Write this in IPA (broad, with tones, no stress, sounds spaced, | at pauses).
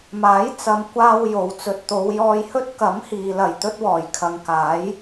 m aː˨˥ j t͡s ɐ˨˧ m kʷ aː˧ w j o˨ w t͡s ɵ˨ t̚ t̪ o˨˧ w j ɔː˧ j h ɵ˥ t̚ k ɐ˨˥ m h iː˨ l ɐ˨˩ j t̪ ɵ˧ t̚ w ɔː˨˩ j kʰ ɐ˨˧ ŋ k aː˨˥ j